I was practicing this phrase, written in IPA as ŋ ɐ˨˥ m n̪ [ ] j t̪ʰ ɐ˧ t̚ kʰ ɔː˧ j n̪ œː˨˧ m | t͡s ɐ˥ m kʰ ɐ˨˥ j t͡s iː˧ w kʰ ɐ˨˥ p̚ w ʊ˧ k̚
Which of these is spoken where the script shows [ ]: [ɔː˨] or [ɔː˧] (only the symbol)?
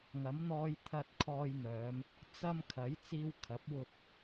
ɔː˧